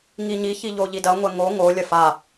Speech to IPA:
ŋiɲiçi ʎoʎidɐŋʷɛ ŋo ŋolʲɐ fa

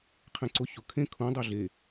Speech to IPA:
qʰɛ̃ǀʊ çʊ kʰẽ kʰũ dˤøɮe

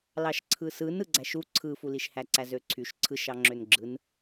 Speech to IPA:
lɑʃǀʰɯsɯn ɯɡ͡ǀæʃu ǀʰɯfuliʃhæ ǀæzøǀʰyʃ ǀʰɯʃɑ ŋ͡ǁønɡ͡ǁɯn

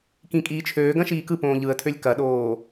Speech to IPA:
kĩkʼiːt͡ʃʰøː ɡɐ̃ʃiːkɯ põːʎɯə̯tʰølʲ kɐɗoː

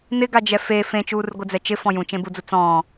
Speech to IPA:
nɪɡad͡ʒɛ fe fẽt͡ʃuːrɡʷɪd͡zɛ t͡ʃɪfɔ̃ jũt͡ʃẽbud͡zʊ t͡sɔ̃ː

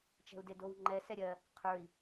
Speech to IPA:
t͡ʃɛ̤u̯dedowŋ͡ǃɛ sɛɾʲɜ | qʰə˞i̯

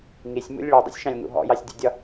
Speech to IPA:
ŋisʲmṵlʲ ɭidˤḭsʲʃɑ̃lʲŋṵ ɦɔ̰jɑsʲdʲṵdʲɒ

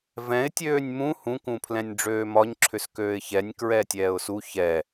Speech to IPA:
vɛ̃ɪ̯ tʲøːnʲmũ hũkũpʰlɛ̃nʲ ɖ͡ʐøːmɒɲǁʰʏskøːɪ̯ çɛnʲ kɹɛtʲɛːʊ̯su çɛ

